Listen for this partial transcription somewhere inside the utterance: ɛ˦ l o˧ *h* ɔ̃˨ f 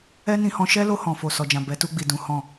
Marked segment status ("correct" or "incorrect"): correct